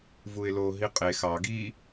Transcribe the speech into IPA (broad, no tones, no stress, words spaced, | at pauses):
vuɪ̯lo ɦiqʼe xɑ ɡi